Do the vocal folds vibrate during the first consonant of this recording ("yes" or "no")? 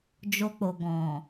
yes